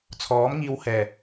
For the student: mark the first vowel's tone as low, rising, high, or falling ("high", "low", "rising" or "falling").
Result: rising